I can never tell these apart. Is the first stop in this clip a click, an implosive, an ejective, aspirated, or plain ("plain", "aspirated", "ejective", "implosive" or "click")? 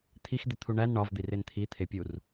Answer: aspirated